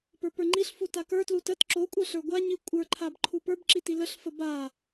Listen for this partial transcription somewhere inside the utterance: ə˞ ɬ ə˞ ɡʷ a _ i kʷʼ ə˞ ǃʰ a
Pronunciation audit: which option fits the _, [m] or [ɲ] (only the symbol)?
ɲ